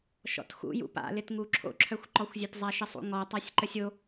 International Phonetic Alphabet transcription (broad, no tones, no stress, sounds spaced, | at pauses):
ʃ ɔ̰ t x ṵ j ṵ p a̰ l ɪ t ŋ u ǁʰ o̰ ǁʰ œ xʷ ǃ ɔ xʷ zʲ œ t zˤ a ʃ ə sˤ ṵ ŋ ɔ tˤ a sʲ ǃ ə sʲ o